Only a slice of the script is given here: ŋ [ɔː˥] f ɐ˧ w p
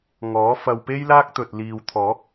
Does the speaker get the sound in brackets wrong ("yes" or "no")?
yes